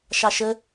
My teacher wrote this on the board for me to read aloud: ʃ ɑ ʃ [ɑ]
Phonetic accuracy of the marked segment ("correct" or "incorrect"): incorrect